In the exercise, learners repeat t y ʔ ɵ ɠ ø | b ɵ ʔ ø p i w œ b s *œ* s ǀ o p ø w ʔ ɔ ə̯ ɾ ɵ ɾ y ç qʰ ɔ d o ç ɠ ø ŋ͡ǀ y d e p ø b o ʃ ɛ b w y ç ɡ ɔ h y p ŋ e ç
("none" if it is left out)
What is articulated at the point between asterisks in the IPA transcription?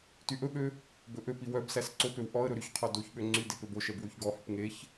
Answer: æ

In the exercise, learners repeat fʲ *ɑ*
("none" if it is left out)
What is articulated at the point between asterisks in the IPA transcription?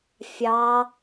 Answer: ɑ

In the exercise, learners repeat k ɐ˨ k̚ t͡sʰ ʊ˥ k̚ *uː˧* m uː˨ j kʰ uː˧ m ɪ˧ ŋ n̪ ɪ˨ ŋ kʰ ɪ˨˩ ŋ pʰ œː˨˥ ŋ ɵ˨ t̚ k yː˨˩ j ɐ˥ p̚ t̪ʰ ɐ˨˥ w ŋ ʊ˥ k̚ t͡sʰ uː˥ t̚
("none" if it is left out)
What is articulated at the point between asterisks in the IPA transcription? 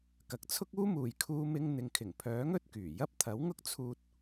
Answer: uː˥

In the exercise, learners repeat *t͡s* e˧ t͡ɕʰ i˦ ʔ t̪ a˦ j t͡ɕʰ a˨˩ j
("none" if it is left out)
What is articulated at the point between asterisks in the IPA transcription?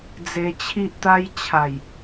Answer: d͡z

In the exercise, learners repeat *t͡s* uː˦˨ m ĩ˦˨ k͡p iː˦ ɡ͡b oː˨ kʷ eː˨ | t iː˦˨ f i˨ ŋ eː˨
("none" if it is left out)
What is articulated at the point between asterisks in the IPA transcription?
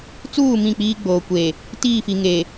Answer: t͡s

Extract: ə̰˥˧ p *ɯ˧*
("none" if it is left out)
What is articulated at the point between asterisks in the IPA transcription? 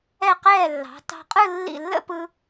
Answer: ɯ˧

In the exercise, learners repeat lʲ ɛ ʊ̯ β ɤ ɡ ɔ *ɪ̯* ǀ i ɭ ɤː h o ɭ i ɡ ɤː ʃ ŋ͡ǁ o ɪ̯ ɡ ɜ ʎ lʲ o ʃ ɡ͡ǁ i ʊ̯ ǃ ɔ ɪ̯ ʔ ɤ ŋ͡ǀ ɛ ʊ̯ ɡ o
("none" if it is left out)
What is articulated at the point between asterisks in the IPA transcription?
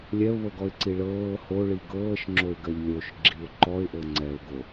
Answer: ɪ̯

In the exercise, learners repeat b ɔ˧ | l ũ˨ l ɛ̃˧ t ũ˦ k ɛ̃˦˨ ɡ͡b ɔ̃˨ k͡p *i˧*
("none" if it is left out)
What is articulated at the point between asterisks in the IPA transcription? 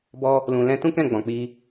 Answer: i˧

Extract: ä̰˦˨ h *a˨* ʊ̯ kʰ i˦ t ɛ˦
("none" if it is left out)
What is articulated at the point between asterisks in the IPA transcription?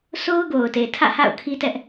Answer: a̰˦˨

